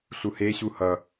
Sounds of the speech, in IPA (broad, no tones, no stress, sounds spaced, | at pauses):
ɬ u h e ɕ u h ʌ